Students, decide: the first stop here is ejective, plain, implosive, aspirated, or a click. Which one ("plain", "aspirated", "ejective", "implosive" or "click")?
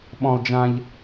implosive